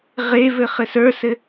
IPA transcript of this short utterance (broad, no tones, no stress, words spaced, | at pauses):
ʁe vɘχɘsə˞sɘ